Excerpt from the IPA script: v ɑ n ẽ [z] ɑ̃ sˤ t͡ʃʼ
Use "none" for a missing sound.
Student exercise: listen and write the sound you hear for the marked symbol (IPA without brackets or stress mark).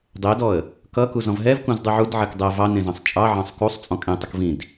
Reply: z